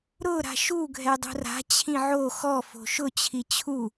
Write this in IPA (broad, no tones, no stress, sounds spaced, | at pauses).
ɾ ʊ ɾ a̤ ʃ u ɡʱ ɛ dˤ ṳ r a̤ t͡ɕʰ ĩ ʕ o x ɔ f o̤ ʃ ʊ t͡ɕʰ i t͡ɕʰ u